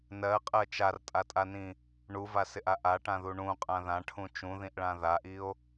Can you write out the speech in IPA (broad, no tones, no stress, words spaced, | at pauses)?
nɜqʼɜ t͡ʃartʼatʼanĩ | ɳuvasɪʔa ʔaʈãðu ɳũqʼã ðãʈʰũ t͡ʃũðĩʔɭã ðaʔio̯